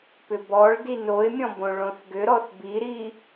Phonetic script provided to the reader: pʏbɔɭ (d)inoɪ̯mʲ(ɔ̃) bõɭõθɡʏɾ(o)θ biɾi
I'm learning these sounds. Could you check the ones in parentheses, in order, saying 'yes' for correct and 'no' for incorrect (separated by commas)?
yes, yes, no